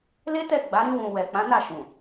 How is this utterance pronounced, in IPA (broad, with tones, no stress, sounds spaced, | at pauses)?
l e˦ t ɛ˦˨ ɡ͡b a˨˦ ɾ ĩ˧ w ũ˨ w ɛ˨ k͡p ã˨˦ n a˦˨ ʃ ũ˨